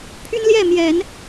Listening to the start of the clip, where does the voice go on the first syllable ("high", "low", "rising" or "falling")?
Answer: high